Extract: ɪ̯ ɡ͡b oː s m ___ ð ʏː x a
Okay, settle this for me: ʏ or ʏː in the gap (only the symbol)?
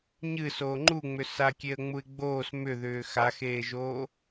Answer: ʏ